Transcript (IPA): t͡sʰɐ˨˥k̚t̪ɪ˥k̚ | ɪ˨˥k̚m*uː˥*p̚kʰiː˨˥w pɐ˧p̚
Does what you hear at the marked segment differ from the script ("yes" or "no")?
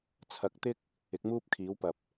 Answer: no